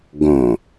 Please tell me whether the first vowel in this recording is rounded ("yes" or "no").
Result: yes